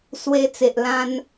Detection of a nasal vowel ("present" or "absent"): present